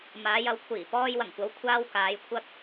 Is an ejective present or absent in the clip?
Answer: absent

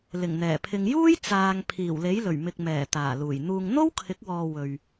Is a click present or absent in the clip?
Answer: absent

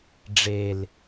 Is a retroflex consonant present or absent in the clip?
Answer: present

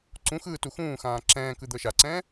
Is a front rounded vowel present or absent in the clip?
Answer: absent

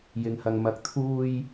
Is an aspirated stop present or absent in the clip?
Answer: present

